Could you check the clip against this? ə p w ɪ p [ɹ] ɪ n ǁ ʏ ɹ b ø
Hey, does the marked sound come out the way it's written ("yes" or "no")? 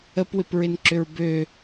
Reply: yes